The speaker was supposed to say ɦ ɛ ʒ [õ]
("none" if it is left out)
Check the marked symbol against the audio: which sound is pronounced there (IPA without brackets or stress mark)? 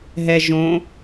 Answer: õ